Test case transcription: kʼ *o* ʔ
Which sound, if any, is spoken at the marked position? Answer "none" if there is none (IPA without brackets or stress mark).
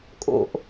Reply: o̰